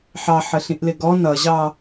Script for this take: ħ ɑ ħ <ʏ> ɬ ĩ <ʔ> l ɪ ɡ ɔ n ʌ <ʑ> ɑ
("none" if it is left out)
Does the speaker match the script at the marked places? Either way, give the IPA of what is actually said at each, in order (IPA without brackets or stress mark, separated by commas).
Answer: ə, ʔ, ʑ